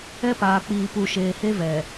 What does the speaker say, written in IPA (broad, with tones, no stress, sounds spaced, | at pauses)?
ɛ˦ p aː˨ k͡p iː˨ p u˨ ʃ eː˨ h e˦ v ɛ˨